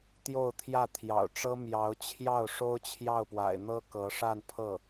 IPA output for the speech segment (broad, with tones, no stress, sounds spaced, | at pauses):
t̪ j o˥˧ ʊ̯ t̪ʰ j ä˥˩ t̪ʰ j ɑ̰˨˩ ʊ̯ ʈ͡ʂ ɤ˥ m j ɑ˧˥ ʊ̯ t͡ɕʰ j ɑ˥˩ ʊ̯ ʂ o˥ ʊ̯ t͡ɕʰ j ɑ˥˩ ʊ̯ p w a̰˨˩ ɪ̯ n̪ ɤ˥ k ɤ˧˥ ʂ a˥˧ n pʰ ɤ˥˩